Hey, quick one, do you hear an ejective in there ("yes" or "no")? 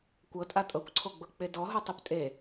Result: yes